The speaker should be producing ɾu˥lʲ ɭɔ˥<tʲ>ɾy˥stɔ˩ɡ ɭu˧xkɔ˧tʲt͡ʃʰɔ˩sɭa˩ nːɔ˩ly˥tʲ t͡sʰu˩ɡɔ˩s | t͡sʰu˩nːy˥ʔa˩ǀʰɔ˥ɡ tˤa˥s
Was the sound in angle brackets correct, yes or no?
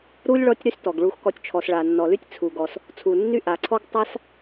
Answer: yes